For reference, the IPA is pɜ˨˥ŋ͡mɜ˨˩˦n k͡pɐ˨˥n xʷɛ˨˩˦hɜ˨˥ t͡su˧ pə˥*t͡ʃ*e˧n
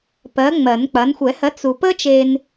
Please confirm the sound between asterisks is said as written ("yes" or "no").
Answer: yes